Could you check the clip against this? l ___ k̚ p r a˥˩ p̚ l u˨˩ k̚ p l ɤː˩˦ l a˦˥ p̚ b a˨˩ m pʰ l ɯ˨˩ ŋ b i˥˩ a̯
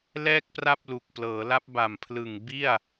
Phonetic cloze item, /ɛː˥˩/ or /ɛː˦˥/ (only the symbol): ɛː˥˩